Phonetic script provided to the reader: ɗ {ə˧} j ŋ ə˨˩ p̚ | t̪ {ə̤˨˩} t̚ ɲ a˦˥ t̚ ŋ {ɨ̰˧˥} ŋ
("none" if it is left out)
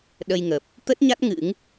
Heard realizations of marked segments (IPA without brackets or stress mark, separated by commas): ə˧, ə˦˥, ɨ̰˧˥